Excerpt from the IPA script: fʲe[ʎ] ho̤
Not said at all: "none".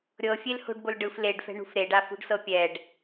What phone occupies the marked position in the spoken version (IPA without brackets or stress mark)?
l